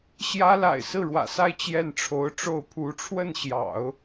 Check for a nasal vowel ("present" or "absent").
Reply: absent